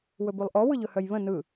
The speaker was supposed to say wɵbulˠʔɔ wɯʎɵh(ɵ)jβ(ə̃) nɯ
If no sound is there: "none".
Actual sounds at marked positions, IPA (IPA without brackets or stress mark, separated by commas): œ, ə̃